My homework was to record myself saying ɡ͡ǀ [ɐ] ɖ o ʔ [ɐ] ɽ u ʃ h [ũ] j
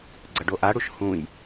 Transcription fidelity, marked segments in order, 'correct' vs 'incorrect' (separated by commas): correct, incorrect, correct